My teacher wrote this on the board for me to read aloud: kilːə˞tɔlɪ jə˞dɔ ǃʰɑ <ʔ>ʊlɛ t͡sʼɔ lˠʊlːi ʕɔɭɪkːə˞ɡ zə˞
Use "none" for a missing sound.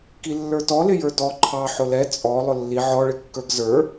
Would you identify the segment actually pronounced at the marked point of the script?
ħ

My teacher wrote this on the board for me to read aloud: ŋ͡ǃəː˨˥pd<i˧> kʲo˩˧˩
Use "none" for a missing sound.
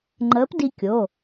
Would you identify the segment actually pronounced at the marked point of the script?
i˧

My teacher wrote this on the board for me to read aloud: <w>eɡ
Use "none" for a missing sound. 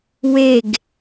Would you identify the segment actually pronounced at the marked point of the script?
w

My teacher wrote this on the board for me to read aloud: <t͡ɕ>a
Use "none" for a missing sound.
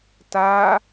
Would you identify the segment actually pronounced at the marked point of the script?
t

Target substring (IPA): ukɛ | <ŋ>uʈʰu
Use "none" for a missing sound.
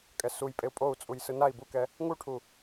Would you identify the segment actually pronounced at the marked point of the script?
ŋ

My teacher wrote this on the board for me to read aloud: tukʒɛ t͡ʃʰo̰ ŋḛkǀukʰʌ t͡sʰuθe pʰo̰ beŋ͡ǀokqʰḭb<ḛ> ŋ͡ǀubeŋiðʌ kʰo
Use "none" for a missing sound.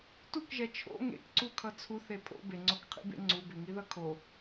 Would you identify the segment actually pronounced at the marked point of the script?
ḛ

